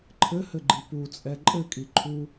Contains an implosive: no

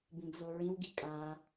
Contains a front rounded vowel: no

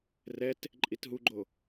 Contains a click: yes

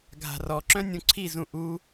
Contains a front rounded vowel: yes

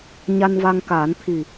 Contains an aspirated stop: yes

